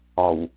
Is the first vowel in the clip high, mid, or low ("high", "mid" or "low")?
low